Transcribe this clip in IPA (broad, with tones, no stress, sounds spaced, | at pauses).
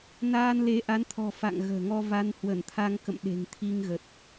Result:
n aː˧ n l e˨˦ ʔ a˨˦ n t̪ʰ ɔ̤˨˩ f a̰˧˨ ŋ ɣ ə̤ː˨˩ ŋ ɔ˧ v a˧ n h w ə˧˩ n t̪ʰ a˧ ŋ k ə̰˧˨ m ɗ e̤˨˩ ŋ t̪ʰ i˧ ŋ ɣ ə˨˩ t̚